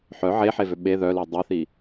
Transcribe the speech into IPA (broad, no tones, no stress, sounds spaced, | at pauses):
ħ œ ʕ e ħ e v ø ɓ e ð œ l i dˤ œ θ i